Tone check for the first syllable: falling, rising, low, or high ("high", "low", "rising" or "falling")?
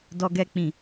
high